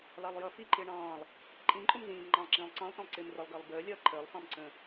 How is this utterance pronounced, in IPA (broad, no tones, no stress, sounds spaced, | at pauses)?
l ɑ lˠ j ʌ f i ǃ ɪː ɳ ɑ̃ː lˠ | ǃʼ ĩ ǃʼ ʊ m z ĩː m ŋ͡ǃ ɑ̃ lˠ ǁ ĩː lˠ ǀ ɑ̃ lˠ t ĩ lˠ ǀ ɪː m r ə lˠ ɡ əː lˠ b əː lʲ ʌː ǃʰ əː lˠ f ɑ̃ m ǀ ə̃